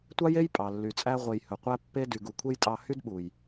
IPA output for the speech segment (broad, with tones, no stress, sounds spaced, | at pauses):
tʷ ɑ˦ j e˦ j pʼ ɑ˨ lː y˨ t͡sʼ æ˧ ʁʷ e˨ j h ɵ˨ qʷ æ˦ pː e˦ d y˨ ɡ u˨ kʷʰ e˦ j tʼ ɑ˧ h y˦ d ɓ u˨ j